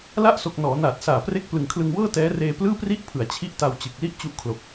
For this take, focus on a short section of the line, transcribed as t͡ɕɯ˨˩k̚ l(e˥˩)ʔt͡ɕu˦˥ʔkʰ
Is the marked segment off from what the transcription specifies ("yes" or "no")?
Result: yes